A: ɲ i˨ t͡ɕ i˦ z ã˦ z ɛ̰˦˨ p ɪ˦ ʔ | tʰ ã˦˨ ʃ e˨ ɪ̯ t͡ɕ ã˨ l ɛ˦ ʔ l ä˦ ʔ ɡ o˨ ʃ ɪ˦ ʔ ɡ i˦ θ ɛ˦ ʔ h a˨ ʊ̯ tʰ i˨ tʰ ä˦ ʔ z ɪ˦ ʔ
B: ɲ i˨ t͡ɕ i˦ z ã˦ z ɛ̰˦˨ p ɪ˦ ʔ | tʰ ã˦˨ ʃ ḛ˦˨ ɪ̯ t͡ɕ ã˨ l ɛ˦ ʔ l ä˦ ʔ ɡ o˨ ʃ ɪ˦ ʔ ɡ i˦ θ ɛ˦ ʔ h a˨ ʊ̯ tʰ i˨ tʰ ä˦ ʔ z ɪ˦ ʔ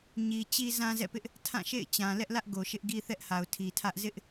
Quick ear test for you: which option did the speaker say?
B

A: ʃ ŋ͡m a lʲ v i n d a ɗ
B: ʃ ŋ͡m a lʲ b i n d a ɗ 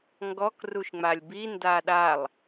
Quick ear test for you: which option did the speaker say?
B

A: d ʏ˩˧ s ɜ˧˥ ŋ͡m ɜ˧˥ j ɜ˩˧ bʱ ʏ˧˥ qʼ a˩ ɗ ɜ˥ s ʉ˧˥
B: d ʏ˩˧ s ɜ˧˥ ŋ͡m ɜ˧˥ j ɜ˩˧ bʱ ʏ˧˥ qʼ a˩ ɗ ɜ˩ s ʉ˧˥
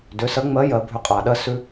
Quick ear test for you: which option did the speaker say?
A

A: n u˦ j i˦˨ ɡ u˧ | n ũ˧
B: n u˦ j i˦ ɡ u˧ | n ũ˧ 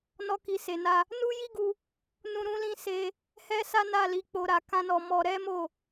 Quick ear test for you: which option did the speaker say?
B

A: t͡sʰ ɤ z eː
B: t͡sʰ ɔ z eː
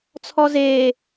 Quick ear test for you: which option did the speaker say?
B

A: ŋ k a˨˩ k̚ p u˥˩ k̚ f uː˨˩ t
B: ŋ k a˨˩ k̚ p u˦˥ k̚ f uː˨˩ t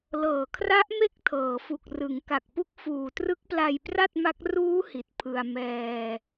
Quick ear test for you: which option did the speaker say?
B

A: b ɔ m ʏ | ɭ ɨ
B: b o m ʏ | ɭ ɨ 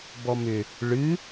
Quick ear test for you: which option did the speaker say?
A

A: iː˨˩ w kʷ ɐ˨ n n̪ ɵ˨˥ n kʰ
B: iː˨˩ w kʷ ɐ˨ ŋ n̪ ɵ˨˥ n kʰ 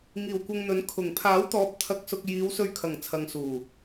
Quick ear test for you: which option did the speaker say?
B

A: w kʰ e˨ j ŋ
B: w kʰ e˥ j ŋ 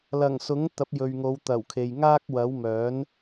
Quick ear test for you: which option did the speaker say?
A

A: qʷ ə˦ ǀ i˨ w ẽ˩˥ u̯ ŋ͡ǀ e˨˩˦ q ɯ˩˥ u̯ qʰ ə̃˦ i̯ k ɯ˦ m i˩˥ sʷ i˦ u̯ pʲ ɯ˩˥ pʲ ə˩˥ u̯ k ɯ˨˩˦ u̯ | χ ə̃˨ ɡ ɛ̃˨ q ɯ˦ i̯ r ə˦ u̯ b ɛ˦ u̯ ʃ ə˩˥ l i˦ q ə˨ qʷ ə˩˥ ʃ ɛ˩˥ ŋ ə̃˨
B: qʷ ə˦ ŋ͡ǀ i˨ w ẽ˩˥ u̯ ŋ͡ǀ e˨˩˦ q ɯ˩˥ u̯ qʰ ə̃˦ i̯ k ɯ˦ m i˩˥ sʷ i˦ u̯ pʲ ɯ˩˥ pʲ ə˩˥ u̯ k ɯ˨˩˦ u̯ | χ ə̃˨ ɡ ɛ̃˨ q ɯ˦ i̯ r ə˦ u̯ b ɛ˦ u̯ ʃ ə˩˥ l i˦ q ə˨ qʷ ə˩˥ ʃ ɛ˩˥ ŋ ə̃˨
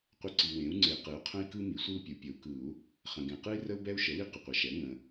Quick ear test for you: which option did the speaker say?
A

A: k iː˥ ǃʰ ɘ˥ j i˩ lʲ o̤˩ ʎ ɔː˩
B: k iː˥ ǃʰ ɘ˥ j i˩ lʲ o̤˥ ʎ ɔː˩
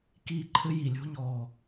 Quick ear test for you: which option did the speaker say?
B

